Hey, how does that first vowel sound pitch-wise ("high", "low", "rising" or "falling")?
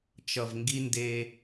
low